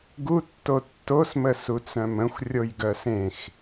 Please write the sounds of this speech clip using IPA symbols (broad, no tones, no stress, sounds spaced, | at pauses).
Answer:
ɡ u tː o tː o s m ə s u t͡s œ̃ m ə̃ xʷ rʲ o j ɡ œ s ẽ x